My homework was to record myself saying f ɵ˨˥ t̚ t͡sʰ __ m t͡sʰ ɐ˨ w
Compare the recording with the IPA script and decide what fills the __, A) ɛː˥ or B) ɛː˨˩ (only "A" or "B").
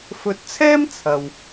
A